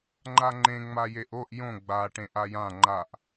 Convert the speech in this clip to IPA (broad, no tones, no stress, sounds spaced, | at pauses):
ŋ͡ǃ a ŋ͡ǃ ẽ ŋ͡m a j e ʔ o ʔ j õ ɡ͡b a ʈ ẽ ʔ a j ã ŋ͡ǃ a ʔ